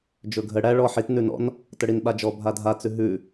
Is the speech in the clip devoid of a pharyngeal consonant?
no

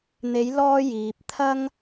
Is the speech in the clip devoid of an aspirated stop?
no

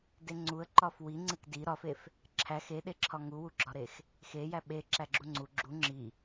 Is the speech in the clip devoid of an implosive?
no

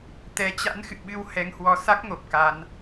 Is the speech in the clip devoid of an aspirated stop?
yes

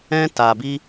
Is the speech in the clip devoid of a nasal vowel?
no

